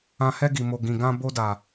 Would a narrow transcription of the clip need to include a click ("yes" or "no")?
no